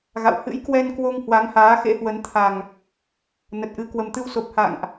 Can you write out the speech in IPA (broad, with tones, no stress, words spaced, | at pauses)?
ɣa̰˧˨w hɨ̰˧˥jkwɛ˧nkwo˧ŋ hwa˨˦ŋhaː˨˦ xḛ˧˥hwə˨˦n t̪ʰa˨˩ŋ | nə˨˩t̚ʔɨ˧ kwə˨˩mt̪ɨ˧wso˨˩p̚ ha̰˧˨ŋʔ